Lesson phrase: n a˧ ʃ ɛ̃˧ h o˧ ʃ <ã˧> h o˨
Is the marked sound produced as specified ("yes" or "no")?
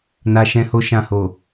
no